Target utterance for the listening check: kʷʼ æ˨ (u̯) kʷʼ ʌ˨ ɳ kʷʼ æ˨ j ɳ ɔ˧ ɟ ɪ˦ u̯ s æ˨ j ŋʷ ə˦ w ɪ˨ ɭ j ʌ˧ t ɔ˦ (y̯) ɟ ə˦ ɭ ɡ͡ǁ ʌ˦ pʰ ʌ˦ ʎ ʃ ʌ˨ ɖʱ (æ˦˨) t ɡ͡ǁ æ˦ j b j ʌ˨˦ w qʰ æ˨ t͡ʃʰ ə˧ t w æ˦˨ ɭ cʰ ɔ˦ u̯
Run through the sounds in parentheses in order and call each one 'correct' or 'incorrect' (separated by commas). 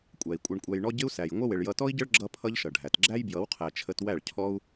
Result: incorrect, incorrect, incorrect